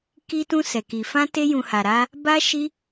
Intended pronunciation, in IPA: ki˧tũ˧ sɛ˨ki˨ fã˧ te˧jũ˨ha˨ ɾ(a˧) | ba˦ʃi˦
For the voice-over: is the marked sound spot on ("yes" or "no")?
yes